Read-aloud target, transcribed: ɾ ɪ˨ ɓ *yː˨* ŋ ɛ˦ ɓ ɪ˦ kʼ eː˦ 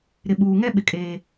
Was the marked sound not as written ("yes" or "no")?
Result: yes